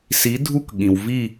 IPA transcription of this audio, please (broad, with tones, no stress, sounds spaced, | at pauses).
s i˧˥ dʱ u˥˧ k ɠ ĩ˨ w v i˥˧